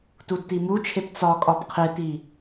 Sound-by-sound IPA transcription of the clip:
tudtimut͡ʃʰep t͡sɒkʼɒp qʰeti

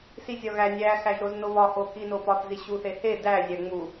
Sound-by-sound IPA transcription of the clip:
sizʲɒɣæ nʲæ xæʒɾoznoβɒ hokinopɒθ ziɕuθehe dæ zʲæŋ͡mu

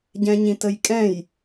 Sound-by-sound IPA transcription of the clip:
ɟɛ̃ɲĩtəjkʼɛ̃j

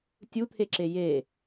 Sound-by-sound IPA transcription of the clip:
tʲut̪ʰeǁe je

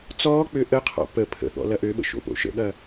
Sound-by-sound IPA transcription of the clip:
t͡sɔːk͡pø ʔəqʰɔ̰ pə pʰə̰ɠɔ̰ lɐʔøɓə̰ ʃo̰po̰ʃə̰ɠɐ

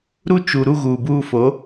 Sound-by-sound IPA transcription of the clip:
ɾu˦t͡ʃu˨ ɾu˦ɣuː˨buː˦fo˨˦

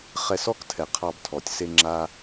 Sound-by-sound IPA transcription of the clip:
χɛ˧sɔ˦ktʰɛ˨ qʰɑ˧btʰɔ˨tʲse˦ ŋ͡ǁa˦

